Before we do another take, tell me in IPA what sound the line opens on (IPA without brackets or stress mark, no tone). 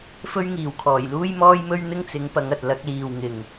f